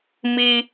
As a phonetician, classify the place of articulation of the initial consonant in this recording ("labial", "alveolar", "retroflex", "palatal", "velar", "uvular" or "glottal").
labial